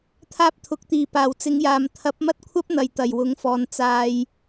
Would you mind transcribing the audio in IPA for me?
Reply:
t̪ʰ aː˥ p̚ t̪ʰ ʊ˨˥ k̚ t̪ iː˨˩ p aː˨˩ w t͡s ɪ˨˥ ŋ j aː˨ m t̪ʰ ɐ˨˥ p̚ m ɐ˥ t̚ kʷʰ ɐ˥ p̚ n̪ ɐ˨ j t̪ ɐ˨˩ j w ʊ˨˥ ŋ f ɔː˨ n t͡s aː˨ j

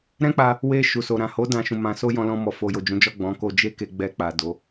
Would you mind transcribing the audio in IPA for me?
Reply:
ɾ ɛ̃˦ k͡p a˧ | w e˧ ʃ u˨ s o˨ ɾ ã˨ h o˨˦ d ã˦˨ ʃ ũ˧ m ã˧ s o˦ j ɔ̃˧ l ɔ̃˧ m ɔ˨ f o˨ j o˨ d͡ʒ ũ˨˦ d͡ʒ ɔ˦˨ ɡ͡b ɔ̃˨˦ k o˧ d͡ʒ e˦ k e˧ ɡ͡b ɛ˧ k͡p a˨ d o˨˦

